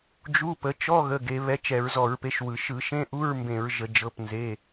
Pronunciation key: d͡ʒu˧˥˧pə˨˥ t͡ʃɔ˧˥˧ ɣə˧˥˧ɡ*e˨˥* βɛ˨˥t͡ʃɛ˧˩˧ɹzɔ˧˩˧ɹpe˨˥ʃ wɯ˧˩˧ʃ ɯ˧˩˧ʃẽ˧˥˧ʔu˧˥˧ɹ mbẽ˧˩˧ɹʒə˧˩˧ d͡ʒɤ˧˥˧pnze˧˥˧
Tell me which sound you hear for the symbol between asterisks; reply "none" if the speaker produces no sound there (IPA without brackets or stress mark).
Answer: e˨˥